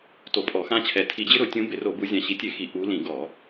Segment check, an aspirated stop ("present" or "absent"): present